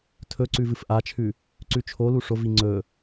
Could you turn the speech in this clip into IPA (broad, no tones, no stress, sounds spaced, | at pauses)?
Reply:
tʰ ɵ ǀ ʉ v ɨ f ʔ a t͡ʃʰ ʉ | ǀ ʉ t͡ʃʰ o l u ʂ o v i ŋ͡ǀ ɵ